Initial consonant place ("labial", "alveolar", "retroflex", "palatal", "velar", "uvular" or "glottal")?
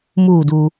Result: labial